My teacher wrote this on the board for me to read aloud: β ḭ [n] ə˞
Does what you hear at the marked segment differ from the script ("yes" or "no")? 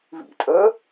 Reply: yes